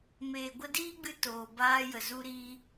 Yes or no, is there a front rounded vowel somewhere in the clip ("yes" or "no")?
no